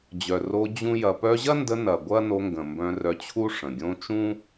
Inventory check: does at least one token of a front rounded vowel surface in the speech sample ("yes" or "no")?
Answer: yes